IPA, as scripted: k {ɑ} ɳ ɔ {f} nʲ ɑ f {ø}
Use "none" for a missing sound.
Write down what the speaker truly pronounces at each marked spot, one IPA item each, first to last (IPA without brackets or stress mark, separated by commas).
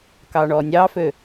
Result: ɑ, none, ø